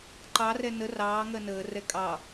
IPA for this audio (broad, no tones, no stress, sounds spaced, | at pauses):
ǃ ɑ r ɛ n ə r ɑː ŋ ɜ n əː r ɛ kʼ ɑ